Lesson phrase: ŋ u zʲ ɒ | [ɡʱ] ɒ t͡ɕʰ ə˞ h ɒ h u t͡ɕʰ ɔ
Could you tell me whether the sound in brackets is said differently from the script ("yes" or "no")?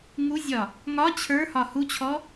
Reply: yes